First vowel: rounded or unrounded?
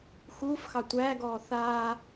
rounded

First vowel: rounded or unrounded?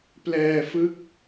unrounded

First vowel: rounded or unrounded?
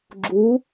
rounded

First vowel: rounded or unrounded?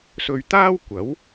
rounded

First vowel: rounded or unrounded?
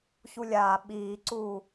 rounded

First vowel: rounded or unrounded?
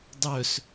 rounded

